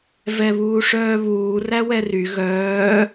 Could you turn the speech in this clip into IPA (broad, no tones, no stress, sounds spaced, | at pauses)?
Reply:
v ɛ β uː ʂ œː β uː r æ w ɛ r y ɣ œː